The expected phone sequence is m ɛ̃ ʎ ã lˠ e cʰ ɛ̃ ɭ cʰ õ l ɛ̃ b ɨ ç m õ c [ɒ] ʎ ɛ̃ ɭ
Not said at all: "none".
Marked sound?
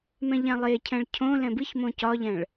ɒ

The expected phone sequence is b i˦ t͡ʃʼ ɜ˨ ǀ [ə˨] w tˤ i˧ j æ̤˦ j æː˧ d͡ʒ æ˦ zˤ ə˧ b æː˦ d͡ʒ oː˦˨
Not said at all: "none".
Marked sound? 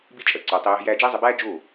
ə˨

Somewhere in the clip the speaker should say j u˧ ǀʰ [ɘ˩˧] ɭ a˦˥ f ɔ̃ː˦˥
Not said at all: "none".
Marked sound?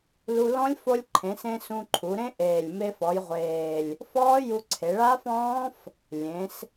e˩˧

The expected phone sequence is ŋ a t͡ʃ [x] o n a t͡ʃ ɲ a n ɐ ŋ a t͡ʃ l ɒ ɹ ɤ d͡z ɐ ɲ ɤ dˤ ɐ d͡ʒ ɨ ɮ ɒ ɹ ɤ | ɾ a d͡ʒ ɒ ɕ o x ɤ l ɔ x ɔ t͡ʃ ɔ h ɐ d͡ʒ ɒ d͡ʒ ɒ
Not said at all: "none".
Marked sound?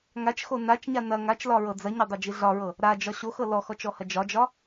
x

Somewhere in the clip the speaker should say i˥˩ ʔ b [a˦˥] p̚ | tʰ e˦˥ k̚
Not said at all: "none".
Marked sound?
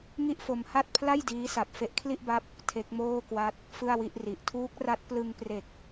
a˦˥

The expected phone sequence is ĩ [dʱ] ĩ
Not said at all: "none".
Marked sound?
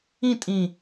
tʼ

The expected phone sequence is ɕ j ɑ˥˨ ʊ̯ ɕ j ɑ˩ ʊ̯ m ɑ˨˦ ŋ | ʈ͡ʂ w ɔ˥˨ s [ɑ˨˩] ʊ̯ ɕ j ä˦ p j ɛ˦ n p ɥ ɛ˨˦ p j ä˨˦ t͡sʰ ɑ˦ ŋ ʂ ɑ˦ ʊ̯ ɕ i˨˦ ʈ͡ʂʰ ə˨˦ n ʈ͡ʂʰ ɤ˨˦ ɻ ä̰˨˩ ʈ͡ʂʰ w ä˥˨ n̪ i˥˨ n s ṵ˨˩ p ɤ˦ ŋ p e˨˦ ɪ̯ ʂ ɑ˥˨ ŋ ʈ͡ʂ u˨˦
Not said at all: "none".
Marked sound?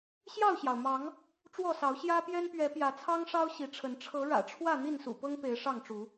ɑ˨˦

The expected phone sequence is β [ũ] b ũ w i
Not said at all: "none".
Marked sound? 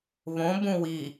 õ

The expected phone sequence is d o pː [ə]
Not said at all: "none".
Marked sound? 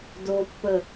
ə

